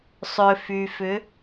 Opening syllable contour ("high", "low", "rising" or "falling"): low